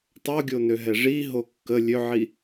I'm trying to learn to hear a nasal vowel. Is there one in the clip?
no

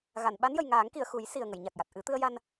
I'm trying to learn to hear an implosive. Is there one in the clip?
yes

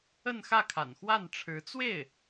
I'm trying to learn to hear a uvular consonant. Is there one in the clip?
no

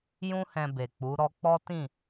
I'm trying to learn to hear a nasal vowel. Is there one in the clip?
yes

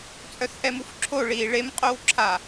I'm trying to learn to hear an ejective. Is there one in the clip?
yes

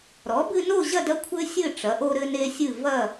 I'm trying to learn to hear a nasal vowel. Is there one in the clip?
no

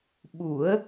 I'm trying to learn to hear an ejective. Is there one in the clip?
no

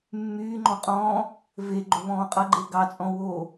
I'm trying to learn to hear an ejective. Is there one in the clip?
yes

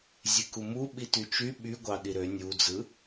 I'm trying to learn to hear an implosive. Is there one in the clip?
yes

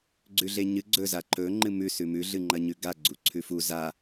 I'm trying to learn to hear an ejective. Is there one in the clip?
no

